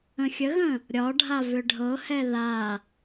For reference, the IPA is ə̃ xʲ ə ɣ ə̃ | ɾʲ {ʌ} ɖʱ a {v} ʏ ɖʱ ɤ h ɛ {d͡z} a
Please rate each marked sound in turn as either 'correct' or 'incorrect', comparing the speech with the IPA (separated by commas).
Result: incorrect, correct, incorrect